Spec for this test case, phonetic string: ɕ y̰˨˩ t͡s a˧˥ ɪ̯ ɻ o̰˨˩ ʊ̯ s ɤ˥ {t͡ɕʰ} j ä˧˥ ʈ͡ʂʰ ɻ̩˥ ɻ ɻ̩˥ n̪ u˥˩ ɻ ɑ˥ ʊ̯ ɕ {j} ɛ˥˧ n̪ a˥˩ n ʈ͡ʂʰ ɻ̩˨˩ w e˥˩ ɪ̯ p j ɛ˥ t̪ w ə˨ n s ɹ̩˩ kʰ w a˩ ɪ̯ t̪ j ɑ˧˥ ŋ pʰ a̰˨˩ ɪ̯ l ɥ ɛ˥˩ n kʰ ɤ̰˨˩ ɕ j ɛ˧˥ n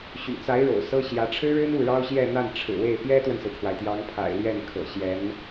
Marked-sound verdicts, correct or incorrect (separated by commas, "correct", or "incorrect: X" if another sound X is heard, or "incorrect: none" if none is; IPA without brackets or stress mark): incorrect: ɕ, correct